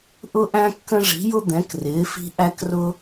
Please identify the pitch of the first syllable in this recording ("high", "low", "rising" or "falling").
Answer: high